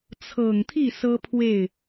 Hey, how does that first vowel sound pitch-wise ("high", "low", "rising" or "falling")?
low